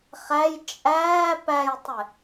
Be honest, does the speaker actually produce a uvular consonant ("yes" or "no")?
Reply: yes